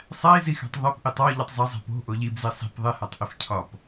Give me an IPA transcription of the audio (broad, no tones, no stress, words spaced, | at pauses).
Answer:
sˤæi̯zixæ̤tˤ ðˤepʔitˤ ɒʎitˤ zˤæzˤæ̤ po̤ʔo ʎibzi sˤi̤p ðˤehætˤʔif cʰɒp